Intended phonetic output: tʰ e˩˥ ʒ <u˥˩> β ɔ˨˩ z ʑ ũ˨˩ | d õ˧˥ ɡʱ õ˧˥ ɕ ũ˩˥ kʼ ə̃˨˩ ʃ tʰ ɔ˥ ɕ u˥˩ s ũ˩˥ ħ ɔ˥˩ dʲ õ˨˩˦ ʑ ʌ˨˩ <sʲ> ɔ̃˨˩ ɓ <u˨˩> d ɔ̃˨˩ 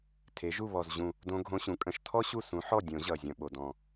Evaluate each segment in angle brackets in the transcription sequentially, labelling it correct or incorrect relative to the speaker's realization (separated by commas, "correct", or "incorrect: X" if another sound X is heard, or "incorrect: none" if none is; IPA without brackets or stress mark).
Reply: correct, incorrect: zʲ, incorrect: o˨˩